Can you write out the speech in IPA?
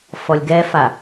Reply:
f ɔ lʲ ɡ ɛ f a

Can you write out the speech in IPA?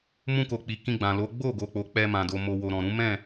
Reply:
m ũ˧ k o˨ k͡p i˨ k ĩ˧ ɡ͡b ã˨ l o˨˦ ɡ͡b o˦˨ ɡ o˨ k͡p o˨ k͡p ɛ˧ m ã˨ d o˨ m o˨ w o˨ ɾ ɔ̃˨ ɾ ũ˨˦ m ɛ̃˦˨

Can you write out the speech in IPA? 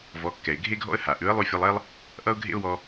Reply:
v ɔ˩˥ kː ɛ˩ ɪ̯ ɡʱ e˥ ɡʱ ɔ̰˥ ə̯ h a˩ ʔ ʉ˩˥ ə̯ lˠ ʉ˧ fʲ ʌ˧ lˠ ɛ˥ lˠ | ʔ ʌ˥ ʊ̯ ɡʱ ḛ˥ ʊ̯ w ɔ˧

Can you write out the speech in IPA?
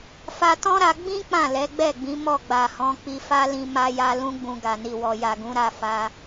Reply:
f a˧ t ɔ̃˦ ɾ a˧ ɡ͡b ĩ˦ k͡p ã˦˨ l ɛ˨˦ ɡ͡b ɛ˦˨ ɡ͡b ĩ˨˦ m ɔ˦˨ ɡ͡b a˨ h ɔ̃˨˦ k͡p i˧ f a˦ l ĩ˧ m a˧ j a˧ l ũ˦ ɡ͡b ũ˧ ɡ a˨ n i˨ w ɔ˨ j a˨ ɡ ũ˨˦ ɾ a˦˨ f a˧

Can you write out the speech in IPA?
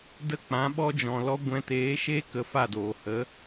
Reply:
d ə˦ k͡p ã˨˦ ɓ ɔ˦ d͡ʒ ɔ̃˨ l ɔ˦ ɡʷ ɛ̃˧ t eː˨˦ ʃ e˦ k ə˨˦ f a˦˨ d oː˨ h ə˨˦

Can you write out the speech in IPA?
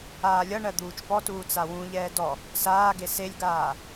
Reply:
aː lʲ ʌ ɳ ɜ d̪ uː t͡ʃ p ɔ t uː t͡s a w ũ ʎ ɛː d ɔ | s aː ɡ e s e lʲ ɡ aː

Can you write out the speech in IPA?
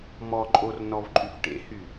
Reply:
m ɔ ǃʼ o r n ɔ v ǃʼ y f ʈ ḛ h y

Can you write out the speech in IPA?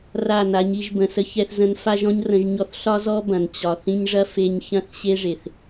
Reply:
r a˦˨ n a˨˦ ɲ i˧ ʒ b ə̃˨ s ə˧ ç ɛ˧ θ z ə̃˧ n f a˦ ʒ ɔ̃˦ ɲ r ə̃˧ ʒ ɲ ɔ˧ θ ɬ ɒ˦ z ɔ˦ b ɐ̃˨ n t͡ɕ ɒ˨ θ ĩ˧ ɲ ʐ ɐ˦ f e˧ ɲ ç ɐ̃˦˨ θ ɕ e˦ ʐ e˨ θ

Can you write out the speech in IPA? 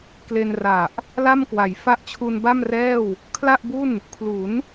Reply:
k l e˧ n r a˨˩ ʔ | l a˥˩ m k w a˩˦ j f a˦˥ ʔ t͡ɕʰ u˧ n b a˥˩ m r ɛː˥˩ w | kʰ l a˥˩ ʔ b u˥˩ n | kʰ l u˩˦ n

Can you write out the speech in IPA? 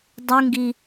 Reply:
dˤ u ŋ ɡ i

